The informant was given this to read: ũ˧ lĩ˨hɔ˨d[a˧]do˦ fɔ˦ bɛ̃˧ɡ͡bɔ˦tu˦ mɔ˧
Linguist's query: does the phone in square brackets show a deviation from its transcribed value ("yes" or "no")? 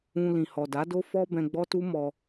yes